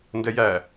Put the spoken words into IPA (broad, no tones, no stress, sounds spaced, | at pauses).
n d ɛ j æ